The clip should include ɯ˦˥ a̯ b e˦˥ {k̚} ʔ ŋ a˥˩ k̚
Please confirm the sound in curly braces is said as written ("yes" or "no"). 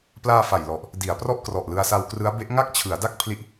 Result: no